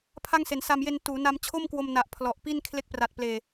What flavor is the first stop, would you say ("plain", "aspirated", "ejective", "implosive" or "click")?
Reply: aspirated